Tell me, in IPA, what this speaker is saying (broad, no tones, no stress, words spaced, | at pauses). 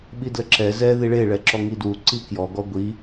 ɓidləǁɛ zɛ ðiɭe ɭɛǁɔŋidwu ǀikjɔ ɡɔɡʷi